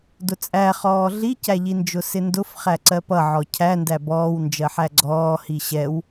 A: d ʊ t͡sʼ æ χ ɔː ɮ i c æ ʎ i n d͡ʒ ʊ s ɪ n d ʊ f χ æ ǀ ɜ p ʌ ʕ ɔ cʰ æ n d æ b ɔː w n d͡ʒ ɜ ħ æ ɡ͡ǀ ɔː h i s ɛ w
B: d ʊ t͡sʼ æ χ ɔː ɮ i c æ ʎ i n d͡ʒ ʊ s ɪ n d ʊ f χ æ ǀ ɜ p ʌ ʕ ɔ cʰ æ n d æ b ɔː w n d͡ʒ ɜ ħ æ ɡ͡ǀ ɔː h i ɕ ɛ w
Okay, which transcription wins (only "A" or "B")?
B